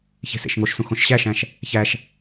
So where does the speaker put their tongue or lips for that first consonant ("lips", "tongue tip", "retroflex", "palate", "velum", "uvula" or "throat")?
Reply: palate